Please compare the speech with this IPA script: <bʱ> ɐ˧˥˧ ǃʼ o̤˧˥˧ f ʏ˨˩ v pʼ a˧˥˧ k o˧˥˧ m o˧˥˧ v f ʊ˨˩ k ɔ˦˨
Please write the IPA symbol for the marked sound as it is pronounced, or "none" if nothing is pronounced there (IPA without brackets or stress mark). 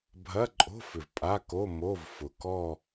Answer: bʱ